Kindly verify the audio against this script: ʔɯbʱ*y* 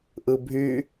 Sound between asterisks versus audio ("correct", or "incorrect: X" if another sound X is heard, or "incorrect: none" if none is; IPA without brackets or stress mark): correct